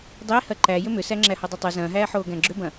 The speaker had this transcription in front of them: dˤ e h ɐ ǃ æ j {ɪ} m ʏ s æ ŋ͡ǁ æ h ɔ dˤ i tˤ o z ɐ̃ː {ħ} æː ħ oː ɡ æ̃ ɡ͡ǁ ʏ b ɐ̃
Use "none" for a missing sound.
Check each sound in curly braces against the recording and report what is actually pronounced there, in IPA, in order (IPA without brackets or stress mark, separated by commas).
ʏ, ɦ